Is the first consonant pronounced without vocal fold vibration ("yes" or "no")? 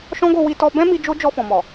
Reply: yes